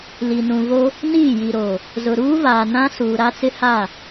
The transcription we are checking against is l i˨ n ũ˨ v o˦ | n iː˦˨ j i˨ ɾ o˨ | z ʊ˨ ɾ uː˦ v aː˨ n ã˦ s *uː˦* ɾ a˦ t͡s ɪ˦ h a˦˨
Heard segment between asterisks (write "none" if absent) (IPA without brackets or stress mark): uː˨